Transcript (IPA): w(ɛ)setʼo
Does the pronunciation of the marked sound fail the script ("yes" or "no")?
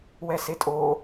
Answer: no